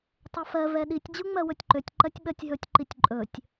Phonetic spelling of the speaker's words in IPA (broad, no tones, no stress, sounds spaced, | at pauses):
tˤ ɛ f ɜ v ɛ ɗ i tʲ d͡ʑ u ŋ͡m ɜ w ɵ tʲ ǃ ø tʲ ǃ ɜ tʲ ɓ ɜ tʲ ɦ ɵ tʲ ǃ i tʲ ǃʼ ɵ tʲ